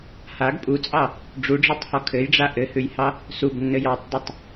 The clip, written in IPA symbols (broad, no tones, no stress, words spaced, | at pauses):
haɡ pʼut͡sʼɑ | ɖ͡ʐuɖ͡ʐɔtˤhɔ kʰɘjɖ͡ʐa ʔɘhʉjhɑ | subnːɘj ɑtˤdˤʉtˤ